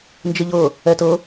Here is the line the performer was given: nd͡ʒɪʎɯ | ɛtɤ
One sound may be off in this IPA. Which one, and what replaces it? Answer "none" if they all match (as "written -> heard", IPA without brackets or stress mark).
ɯ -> ɤ